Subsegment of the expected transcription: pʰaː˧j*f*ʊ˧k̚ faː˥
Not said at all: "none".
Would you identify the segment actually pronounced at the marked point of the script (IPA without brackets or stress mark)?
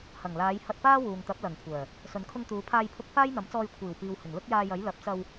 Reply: pʰ